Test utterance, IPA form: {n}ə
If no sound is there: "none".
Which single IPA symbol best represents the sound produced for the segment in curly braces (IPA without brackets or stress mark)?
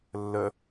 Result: lː